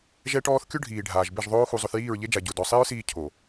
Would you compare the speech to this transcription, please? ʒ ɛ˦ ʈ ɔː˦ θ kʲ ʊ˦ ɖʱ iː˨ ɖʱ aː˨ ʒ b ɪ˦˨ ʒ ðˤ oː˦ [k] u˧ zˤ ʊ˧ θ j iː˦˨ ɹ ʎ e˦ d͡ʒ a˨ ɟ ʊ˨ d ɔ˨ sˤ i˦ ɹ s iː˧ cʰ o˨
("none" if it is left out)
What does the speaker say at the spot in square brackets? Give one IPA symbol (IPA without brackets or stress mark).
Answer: x